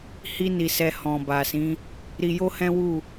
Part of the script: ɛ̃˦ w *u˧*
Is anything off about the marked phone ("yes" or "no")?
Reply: yes